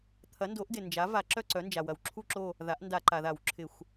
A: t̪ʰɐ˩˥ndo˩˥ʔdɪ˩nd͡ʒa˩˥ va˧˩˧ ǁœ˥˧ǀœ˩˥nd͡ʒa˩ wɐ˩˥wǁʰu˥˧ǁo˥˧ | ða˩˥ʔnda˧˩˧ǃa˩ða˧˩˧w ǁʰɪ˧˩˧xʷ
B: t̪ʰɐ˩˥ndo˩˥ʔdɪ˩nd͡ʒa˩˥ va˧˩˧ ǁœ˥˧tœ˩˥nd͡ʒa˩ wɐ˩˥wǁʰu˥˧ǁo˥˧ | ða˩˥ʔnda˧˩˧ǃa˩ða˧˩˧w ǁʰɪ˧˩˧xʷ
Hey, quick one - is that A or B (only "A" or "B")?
A